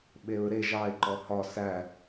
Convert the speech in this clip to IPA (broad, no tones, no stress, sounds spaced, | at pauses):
ɓ e ɹ ɾ e ʒ ɑ ɪ̯ ǃ ɔ h ɒ s æ